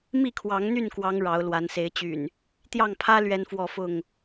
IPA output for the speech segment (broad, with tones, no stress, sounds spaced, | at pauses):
m i˥˨ kʰ w ɑ˨˦ ŋ n̪ y˥˨ n k w ɑ˨˦ ŋ ɻ ɑ˨˦ ʊ̯ l w a˨˦ n s e˨˦ ɪ̯ t͡ɕ y̰˨˩ n | t̪ j ɑ˥˨ ŋ pʰ ä˦ l ɥ ɛ˦ n f w ɔ˥˨ f ʊ˥˨ ŋ